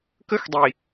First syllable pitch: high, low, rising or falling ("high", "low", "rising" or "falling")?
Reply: high